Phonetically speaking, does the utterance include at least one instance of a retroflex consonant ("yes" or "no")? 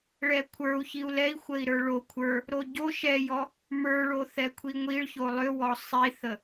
yes